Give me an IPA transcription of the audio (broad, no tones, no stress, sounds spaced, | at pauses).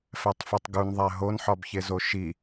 f æ tˤ f o tˤ ɡ u n ðˤ æ ɦ o n ħ ɒ b ç e z o ʃ i